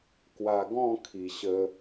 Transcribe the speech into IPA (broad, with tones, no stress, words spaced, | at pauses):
kwa˨˩ɡɔ̃˥˧ kʰi˨˩ ɕə˧